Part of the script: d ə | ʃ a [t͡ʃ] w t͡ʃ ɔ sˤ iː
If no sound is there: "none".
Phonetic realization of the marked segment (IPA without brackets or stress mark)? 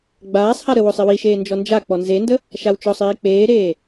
none